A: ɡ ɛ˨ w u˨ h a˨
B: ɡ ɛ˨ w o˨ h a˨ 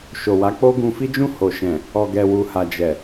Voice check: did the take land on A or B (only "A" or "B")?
A